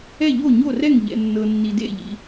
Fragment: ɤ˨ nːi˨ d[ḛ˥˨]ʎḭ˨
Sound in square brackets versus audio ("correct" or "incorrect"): correct